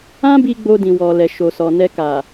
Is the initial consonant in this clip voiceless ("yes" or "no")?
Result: no